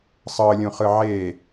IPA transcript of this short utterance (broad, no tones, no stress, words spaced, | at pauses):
sˤɤlʲũχɯ ʕe